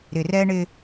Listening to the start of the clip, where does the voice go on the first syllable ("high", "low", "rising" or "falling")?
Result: low